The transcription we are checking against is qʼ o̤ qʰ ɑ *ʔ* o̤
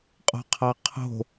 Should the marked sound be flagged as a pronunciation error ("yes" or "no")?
yes